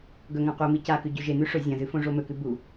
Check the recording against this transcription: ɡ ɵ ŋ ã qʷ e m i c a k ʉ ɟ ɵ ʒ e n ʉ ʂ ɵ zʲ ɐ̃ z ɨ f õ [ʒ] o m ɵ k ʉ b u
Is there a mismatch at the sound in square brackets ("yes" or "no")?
yes